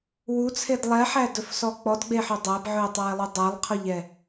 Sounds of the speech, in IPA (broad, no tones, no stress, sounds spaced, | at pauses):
w u t͡sʰ e d lˠ ɛ ħ æ d ɵ f s ɔ k͡p ɔ d ɡ͡b e ħ œ dˤ æ b ʕ ɵ e̯ tˤ æ e̯ lˠ u dˤ ɛ lˠ qʰ ɔ ʎ ɛ